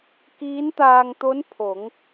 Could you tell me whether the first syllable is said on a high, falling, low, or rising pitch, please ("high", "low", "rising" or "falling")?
rising